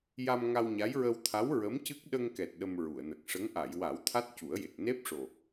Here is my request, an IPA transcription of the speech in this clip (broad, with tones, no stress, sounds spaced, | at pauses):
j a˧ m ŋ a˧ w ɲ a˧˥ j ɹ ə˧ w t̪ʰ a˧˥ w ɹ ə˧˥ m c ɨ˦˥ k̚ ɗ ə˧ ŋ k ɛ˨˩ t̚ ɗ ə˧ m ɹ u˨˩˨ ə̯ n ə˨˩ k̚ ʂ ə˧˥ ŋ ʔ a˨˩˨ j w a˨˩˦ w t̪ʰ a˦˥ t̚ c u˨˩˦ ə̯ j e˨˩ k̚ n e˦˥ p̚ ʂ o˨˩